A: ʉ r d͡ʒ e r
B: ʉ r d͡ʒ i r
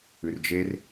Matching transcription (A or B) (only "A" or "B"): A